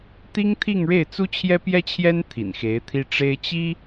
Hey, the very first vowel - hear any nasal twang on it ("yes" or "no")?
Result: no